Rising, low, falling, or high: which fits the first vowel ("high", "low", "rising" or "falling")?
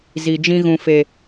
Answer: low